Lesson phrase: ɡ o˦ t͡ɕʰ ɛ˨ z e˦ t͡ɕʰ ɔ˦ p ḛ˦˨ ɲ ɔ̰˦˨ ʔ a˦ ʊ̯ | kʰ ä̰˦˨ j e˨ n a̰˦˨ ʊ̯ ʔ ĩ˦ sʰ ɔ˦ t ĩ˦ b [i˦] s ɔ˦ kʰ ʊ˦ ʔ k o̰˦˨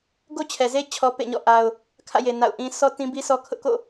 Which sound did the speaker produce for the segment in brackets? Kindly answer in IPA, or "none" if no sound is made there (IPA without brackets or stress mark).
i˦